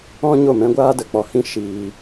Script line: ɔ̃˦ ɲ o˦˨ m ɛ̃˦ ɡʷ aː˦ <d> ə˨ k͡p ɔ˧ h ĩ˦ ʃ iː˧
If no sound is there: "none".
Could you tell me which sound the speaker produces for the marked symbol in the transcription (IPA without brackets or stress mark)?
d